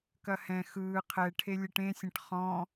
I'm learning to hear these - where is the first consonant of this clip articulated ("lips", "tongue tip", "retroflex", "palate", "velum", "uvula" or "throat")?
velum